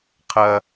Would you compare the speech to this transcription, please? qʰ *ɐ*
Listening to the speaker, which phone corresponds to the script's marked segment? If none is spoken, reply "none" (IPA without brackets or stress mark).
ɐ